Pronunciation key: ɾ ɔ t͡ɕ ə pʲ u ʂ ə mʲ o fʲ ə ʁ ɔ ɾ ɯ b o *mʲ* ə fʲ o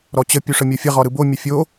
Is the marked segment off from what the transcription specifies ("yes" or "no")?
no